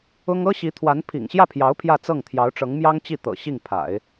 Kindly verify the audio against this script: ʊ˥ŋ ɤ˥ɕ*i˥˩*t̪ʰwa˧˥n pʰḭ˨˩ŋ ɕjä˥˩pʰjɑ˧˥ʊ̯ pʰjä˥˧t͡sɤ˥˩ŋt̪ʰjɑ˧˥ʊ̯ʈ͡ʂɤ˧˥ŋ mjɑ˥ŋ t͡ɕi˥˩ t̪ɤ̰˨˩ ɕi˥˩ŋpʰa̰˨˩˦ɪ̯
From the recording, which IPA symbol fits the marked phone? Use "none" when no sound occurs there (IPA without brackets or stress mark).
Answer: i˧˥